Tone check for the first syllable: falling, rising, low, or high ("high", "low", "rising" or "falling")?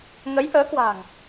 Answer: rising